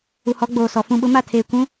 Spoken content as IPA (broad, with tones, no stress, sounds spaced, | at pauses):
u˨ h ɔ˨˦ ɡ͡b oː˨ s ɔ˨ f ũ˨ ɓ ʊ˨˦ m a˦˨ tʰ eː˨ kʷ ũ˨˦